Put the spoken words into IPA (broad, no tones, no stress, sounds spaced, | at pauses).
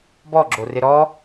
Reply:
b ɔ ɡ͡ǁ o r ɪ ɾ ɔ